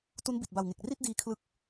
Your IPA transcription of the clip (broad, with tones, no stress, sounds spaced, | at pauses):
t u˦˥ n b i˨˩ t̚ b a˨˩ w ŋ e˨˩ k̚ r i˥˩ t̚ d iː˦˥ kʰ l ɯ˦˥ k̚